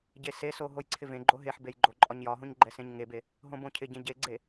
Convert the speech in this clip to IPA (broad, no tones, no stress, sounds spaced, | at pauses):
ɟ e s e s o ɦ o j ǀʰ ɪ v ẽ ɡ͡ǃ o ɦ e ħ b e j ɡ͡ǃ o ǃʼ ɒ ɲ j ɒ ɦ õ ɲ ɡ͡ǃ ɛ s ẽ ɲ ŋ e b e | ɦ õ b õ cʰ ɪ ɟ ẽ ɟ e ɡ͡ǀ e